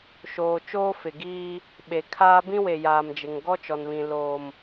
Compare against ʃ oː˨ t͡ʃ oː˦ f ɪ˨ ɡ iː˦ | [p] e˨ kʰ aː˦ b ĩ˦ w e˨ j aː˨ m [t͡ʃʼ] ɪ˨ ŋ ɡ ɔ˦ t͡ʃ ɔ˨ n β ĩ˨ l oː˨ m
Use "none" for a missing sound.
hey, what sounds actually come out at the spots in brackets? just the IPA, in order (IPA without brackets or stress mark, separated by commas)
ɓ, d͡ʒ